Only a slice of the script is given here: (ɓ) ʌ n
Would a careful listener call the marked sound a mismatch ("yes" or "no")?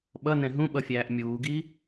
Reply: no